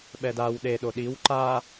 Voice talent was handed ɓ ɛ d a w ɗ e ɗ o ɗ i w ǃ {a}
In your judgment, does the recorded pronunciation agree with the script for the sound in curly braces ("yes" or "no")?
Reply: yes